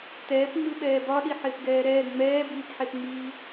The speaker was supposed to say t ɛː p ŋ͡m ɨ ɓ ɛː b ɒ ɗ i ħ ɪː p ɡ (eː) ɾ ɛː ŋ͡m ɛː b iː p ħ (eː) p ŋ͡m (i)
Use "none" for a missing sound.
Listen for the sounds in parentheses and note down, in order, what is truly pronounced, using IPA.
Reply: ɛː, e, iː

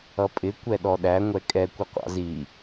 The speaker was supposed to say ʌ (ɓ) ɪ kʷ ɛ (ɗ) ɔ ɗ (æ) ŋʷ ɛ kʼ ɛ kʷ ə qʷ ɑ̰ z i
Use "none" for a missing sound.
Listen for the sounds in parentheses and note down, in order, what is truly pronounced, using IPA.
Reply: pʼ, ɗ, æ

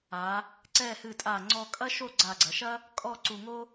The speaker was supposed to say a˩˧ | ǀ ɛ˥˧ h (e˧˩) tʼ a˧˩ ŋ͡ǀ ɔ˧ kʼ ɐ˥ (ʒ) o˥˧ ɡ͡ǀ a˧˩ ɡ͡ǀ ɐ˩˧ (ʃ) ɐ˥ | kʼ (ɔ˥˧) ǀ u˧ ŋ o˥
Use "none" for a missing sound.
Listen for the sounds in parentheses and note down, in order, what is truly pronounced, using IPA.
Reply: ɨ˧˩, ʃ, ʃ, ɔ˥˧

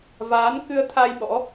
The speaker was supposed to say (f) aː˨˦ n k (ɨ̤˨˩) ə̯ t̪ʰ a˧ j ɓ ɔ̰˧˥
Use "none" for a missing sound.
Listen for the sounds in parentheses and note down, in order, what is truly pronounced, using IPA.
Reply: v, ɨ˧

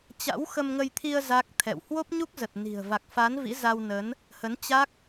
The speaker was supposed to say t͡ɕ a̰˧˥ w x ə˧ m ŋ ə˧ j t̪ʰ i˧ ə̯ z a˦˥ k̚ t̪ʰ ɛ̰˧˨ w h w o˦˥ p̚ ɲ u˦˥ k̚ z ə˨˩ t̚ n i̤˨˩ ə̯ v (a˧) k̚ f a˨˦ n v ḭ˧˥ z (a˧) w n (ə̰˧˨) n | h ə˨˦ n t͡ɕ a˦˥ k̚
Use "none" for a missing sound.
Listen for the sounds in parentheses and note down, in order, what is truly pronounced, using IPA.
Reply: a˨˩, a˧, ə˨˦

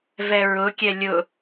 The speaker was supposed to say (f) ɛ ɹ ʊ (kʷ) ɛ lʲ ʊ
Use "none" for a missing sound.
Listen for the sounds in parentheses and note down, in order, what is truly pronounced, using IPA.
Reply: v, kʲ

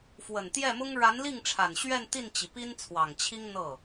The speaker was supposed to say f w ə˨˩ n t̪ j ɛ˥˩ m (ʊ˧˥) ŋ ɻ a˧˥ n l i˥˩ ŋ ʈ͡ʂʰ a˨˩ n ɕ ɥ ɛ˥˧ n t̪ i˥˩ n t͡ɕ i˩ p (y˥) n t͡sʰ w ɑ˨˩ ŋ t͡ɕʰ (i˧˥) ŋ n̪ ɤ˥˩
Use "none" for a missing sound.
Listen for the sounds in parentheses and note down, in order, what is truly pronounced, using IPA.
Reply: ʊ˥, i˥, i˥

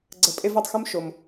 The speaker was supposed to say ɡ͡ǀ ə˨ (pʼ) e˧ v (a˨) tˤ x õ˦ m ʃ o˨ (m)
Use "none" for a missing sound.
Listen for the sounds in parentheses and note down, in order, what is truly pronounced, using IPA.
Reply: pʼ, ɑ˨, m

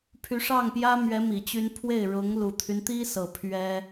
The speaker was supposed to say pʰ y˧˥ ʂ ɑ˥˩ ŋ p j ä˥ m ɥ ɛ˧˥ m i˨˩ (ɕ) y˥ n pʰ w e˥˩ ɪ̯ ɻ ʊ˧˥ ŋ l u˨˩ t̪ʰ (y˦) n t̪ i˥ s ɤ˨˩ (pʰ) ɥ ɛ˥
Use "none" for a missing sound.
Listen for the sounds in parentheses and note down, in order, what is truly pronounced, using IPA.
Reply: t͡ɕ, y˦, pʰ

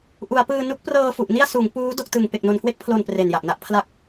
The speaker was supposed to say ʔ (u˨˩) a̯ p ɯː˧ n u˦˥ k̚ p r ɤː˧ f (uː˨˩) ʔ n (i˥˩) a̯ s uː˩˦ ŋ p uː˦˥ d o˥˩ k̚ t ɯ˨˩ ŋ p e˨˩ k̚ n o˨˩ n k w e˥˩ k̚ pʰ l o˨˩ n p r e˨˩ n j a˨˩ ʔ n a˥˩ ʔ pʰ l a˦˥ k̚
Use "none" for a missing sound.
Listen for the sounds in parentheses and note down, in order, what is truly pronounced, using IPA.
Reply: u˩˦, u˨˩, i˥˩

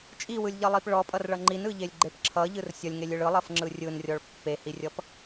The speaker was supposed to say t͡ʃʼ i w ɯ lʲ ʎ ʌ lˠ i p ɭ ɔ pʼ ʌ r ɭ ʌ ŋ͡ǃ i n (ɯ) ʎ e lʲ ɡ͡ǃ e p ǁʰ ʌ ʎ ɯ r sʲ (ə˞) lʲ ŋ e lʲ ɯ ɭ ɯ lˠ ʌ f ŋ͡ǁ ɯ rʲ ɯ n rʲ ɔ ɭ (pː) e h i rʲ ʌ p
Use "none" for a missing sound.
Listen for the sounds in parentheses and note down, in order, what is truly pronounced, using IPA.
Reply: ɯ, ʌ, pː

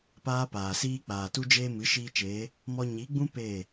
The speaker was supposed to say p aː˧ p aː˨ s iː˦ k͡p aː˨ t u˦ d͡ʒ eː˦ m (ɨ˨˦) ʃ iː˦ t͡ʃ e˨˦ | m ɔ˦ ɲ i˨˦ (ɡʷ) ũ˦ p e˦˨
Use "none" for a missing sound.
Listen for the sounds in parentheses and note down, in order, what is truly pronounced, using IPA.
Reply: ɨ˨˦, ɡ͡b

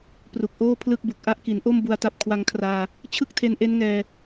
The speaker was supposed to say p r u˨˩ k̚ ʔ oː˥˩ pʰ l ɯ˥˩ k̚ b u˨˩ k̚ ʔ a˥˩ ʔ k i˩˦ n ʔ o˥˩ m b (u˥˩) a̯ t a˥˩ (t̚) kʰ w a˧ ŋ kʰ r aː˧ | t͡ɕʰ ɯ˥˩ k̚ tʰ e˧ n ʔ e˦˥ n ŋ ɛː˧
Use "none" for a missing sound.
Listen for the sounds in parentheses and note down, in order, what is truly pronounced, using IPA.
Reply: u˧, p̚

